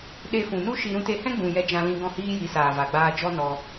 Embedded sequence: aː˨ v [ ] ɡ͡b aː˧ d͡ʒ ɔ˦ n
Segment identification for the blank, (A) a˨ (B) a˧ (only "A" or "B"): A